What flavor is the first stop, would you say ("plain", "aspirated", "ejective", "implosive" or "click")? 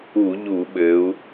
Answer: implosive